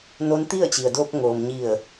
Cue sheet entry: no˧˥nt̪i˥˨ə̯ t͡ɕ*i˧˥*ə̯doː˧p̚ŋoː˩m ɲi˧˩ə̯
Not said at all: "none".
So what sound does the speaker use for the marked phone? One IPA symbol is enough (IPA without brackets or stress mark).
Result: i˩